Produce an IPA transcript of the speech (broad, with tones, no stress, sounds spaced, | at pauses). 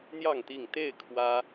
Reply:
n̪ j ɑ˥˨ ŋ t̪ i˥˨ ŋ t̪ e˥˨ ɪ̯ kʰ w ä˦